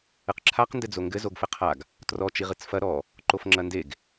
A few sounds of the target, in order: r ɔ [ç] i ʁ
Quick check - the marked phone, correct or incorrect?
incorrect